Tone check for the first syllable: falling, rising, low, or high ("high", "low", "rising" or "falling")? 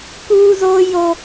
high